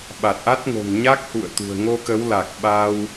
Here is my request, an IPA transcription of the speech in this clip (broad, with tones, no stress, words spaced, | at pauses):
ɓa˨˩t̚ʔa˦˥t̚ ŋo̤˨˩ŋɲa˦˥k̚hṵ˧˨ə̯ t̪ṳ˨˩ə̯ŋo˧kə˨˦w la˨˩k̚ɓaː˧w